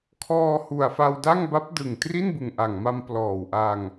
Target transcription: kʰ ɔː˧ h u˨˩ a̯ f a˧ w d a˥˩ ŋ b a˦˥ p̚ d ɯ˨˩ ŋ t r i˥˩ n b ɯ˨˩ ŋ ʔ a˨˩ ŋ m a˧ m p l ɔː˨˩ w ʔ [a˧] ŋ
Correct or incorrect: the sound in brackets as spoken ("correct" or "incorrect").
correct